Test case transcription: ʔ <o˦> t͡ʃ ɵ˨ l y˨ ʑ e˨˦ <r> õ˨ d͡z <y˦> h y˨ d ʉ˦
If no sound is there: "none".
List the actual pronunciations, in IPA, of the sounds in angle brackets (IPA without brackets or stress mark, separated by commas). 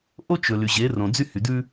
o˦, r, y˦